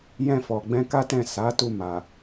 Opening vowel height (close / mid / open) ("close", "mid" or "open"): mid